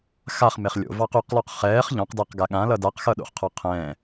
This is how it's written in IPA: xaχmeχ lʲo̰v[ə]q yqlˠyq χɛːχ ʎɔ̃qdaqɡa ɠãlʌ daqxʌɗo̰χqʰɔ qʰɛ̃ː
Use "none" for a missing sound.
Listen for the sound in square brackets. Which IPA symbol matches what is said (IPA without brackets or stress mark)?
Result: ɑ